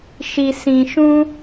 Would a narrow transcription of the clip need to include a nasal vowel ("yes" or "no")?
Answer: yes